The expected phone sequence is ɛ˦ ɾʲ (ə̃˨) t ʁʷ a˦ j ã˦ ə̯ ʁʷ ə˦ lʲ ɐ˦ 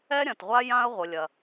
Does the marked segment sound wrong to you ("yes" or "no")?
yes